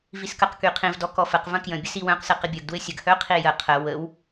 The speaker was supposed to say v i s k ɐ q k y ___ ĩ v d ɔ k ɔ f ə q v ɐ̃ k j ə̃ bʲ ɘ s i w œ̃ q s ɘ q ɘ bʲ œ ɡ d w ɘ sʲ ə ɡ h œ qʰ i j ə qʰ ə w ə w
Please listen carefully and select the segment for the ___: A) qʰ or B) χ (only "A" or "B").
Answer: A